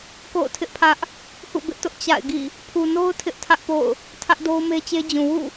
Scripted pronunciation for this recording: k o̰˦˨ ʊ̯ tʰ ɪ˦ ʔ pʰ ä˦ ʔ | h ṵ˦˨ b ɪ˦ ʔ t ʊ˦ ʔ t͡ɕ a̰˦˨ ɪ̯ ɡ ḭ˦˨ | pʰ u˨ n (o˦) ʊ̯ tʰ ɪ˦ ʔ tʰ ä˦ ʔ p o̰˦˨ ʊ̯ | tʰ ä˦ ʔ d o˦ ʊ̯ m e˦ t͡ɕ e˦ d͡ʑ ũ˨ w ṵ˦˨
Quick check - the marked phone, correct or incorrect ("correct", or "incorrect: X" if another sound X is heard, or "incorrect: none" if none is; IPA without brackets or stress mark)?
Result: correct